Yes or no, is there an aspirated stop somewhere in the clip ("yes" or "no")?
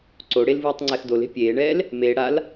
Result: no